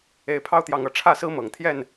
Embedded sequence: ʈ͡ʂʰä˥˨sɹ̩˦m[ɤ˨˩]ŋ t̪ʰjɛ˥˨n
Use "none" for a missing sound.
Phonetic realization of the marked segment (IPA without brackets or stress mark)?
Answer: ɤ˨˩